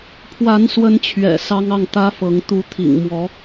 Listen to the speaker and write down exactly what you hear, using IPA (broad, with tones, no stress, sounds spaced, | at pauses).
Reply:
pʰ w a˧˥ n s w ə˧˥ n t͡ɕʰ ɥ ɛ̰˨˩ s ɑ˥ ŋ ɑ˥˩ ŋ t̪ ä˥ f ɤ˧˥ ŋ t̪ u˧˥ t̪ʰ ḭ˨˩ ŋ m w ɔ˧˥